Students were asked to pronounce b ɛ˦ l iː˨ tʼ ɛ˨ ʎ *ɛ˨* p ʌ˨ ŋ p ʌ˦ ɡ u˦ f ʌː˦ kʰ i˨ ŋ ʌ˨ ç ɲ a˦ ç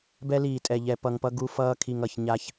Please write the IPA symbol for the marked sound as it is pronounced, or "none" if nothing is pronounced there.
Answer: ɛ˨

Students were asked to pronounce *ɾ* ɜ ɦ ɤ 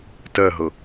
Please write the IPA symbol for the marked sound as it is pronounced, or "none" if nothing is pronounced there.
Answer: t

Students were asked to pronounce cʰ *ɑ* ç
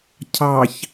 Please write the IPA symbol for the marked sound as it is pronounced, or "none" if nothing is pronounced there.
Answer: ɑ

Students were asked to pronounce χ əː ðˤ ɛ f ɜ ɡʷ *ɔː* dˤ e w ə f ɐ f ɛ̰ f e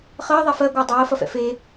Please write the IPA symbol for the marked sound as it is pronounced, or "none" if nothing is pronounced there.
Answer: əː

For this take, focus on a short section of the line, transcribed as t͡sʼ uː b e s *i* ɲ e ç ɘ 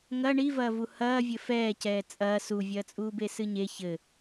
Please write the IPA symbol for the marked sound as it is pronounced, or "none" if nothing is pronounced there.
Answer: ɨ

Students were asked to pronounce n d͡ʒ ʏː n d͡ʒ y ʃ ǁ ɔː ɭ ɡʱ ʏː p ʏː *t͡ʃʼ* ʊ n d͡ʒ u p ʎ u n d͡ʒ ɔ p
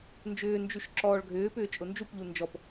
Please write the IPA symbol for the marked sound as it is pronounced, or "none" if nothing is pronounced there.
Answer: t͡ʃʼ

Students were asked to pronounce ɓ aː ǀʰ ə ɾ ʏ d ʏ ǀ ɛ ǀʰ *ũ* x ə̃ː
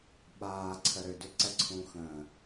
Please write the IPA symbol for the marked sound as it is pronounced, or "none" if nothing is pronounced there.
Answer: ũ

